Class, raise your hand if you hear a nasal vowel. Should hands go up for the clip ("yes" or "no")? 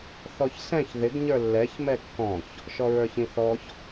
yes